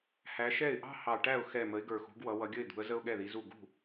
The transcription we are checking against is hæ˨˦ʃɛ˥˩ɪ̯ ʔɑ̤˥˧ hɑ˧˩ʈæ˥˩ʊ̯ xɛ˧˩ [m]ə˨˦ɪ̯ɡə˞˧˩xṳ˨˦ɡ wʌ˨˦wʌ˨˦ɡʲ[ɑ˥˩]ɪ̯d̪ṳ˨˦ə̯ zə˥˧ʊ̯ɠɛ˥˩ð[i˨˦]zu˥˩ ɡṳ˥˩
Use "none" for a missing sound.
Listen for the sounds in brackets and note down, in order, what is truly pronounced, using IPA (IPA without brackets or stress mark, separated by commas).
m, ə˥˩, i˨˦